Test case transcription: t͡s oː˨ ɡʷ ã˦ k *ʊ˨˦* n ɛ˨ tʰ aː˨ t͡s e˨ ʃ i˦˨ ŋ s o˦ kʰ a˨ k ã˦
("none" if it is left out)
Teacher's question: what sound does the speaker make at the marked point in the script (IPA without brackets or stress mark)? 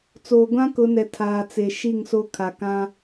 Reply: ʊ˨˦